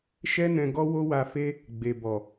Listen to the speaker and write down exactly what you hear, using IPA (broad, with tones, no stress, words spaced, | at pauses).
ʃɛ˦ nɛ̃˧ɡɔ˦ wo˦wa˧ fe˦ | ɡ͡be˨ bɔ˨